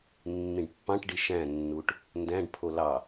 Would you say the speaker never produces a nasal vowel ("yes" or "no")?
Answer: no